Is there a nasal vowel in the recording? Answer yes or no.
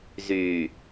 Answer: no